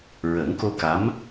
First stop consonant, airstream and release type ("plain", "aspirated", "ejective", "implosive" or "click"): plain